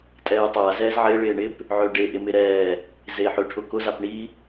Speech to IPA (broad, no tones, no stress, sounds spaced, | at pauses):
tʼ ɛː tˤ a z ɛː z ʕ ɪ ɭ ɪː ɳ ɪ p | ʕ ø ɖ e ʔ ɪ m ɪ ɾ ɛː | z e ħ ʏ ʈʰ ʊ k ʊ z a p ɳ i